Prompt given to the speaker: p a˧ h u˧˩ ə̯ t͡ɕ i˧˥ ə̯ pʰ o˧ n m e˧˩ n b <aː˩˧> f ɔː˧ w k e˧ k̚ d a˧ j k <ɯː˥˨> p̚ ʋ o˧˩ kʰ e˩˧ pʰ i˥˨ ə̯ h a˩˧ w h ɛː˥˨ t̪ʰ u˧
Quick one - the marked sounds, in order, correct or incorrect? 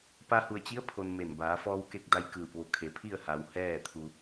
correct, incorrect: ɯː˧˩

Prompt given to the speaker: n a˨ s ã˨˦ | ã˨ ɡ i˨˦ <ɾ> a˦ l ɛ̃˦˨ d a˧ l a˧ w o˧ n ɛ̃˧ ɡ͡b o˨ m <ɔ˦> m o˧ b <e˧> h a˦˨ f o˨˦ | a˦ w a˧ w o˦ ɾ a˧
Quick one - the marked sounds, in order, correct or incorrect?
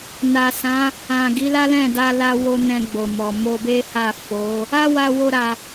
incorrect: l, incorrect: ɔ˨, incorrect: e˦

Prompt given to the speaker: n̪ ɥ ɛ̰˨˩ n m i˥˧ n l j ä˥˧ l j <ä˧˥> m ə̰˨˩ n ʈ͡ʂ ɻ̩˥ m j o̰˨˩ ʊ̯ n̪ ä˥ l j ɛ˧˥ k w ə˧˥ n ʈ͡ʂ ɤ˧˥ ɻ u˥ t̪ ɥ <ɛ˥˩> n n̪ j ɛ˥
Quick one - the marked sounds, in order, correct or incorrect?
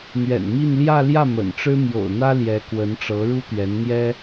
incorrect: ä˥˩, incorrect: ɛ˧˥

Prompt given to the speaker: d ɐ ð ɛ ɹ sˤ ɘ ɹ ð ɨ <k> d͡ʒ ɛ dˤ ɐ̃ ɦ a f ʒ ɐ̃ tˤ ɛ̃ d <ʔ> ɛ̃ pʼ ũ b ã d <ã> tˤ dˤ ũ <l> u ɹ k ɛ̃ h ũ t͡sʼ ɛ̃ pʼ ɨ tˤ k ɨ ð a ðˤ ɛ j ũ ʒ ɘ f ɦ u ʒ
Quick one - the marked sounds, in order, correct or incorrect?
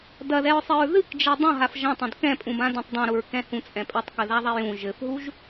correct, incorrect: k, incorrect: ɐ̃, incorrect: ɾ

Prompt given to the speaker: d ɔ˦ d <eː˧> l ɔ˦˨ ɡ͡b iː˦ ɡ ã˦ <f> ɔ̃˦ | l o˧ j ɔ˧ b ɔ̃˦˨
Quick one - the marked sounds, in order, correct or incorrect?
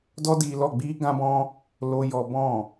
incorrect: iː˧, incorrect: b

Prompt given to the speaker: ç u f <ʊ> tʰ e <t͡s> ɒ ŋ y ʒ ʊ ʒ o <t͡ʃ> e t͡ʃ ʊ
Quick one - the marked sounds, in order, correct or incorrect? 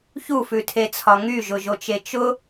incorrect: ʉ, incorrect: t͡sʰ, correct

